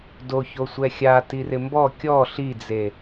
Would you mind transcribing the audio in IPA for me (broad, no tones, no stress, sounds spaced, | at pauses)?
d o ç o sʷ ɛ xʲ a t i r ɪ m b ɔ kʲ ɔ ɬ i d͡z e